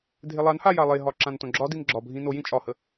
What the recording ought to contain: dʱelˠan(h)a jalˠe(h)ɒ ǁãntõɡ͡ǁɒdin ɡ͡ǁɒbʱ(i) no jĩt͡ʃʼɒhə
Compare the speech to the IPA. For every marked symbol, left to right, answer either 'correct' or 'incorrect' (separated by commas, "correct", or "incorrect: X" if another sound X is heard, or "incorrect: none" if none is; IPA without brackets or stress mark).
correct, incorrect: ɦ, incorrect: ĩ